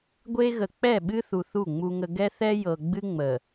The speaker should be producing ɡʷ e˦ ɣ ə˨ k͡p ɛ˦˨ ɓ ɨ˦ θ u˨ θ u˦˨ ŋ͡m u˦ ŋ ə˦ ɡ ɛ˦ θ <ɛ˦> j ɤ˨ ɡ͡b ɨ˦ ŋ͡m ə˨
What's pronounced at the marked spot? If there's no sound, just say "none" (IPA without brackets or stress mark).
ɛ˦